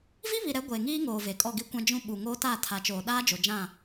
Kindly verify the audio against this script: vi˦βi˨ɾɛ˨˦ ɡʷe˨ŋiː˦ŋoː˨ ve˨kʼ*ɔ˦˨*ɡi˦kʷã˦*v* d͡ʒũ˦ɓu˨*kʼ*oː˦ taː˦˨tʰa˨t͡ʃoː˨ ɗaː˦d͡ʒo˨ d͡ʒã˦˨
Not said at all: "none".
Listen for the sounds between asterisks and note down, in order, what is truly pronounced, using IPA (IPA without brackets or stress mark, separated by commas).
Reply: ɔ˦˨, none, ŋ